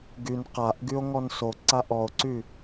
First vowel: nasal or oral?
oral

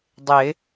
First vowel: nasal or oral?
oral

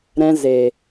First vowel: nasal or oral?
nasal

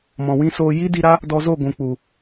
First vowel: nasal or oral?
nasal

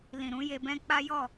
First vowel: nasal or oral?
nasal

